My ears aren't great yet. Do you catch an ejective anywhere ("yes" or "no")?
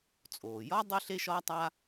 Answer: yes